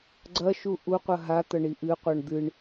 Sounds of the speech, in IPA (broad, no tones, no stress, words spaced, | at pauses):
ɡ͡ǀɐʃu ʔuqʷɐ ɦat̪ɐ ɳiʔɨqʷaɳ d̪ɨɳ